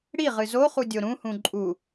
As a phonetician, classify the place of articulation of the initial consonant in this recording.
retroflex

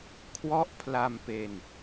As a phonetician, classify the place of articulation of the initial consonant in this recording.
velar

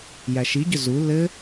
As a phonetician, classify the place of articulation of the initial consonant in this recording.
palatal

